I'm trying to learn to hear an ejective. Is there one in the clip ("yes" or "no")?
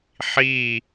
no